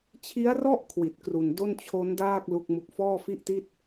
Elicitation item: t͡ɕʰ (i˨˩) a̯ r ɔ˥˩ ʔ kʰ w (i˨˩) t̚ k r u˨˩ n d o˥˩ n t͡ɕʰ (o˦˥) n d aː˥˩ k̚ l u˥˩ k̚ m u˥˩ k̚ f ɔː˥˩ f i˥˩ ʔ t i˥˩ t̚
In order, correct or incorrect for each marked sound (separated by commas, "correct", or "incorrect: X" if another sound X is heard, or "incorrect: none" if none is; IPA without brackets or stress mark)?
incorrect: i˦˥, correct, correct